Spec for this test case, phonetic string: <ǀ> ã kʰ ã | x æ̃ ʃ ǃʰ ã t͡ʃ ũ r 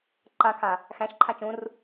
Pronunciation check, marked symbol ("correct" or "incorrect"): incorrect